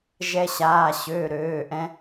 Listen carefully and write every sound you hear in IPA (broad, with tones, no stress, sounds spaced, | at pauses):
ʒ ɛ˧ ɕ aː˩˧˩ ɕ øː˩˧˩ ɾ øː˩˧˩ ʔ ɛ̃˧